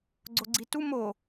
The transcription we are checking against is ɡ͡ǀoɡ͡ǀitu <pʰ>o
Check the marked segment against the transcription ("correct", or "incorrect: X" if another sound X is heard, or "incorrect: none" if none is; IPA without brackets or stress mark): incorrect: m